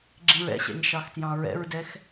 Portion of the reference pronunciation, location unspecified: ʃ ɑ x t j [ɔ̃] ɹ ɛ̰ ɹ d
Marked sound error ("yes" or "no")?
yes